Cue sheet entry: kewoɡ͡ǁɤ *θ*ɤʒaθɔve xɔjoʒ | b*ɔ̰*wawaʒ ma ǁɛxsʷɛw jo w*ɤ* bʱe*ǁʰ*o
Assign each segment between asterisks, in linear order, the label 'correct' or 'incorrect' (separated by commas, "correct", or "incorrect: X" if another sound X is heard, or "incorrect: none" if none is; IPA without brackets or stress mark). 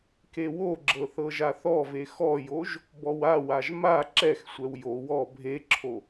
correct, incorrect: ɔ, incorrect: ɔ, correct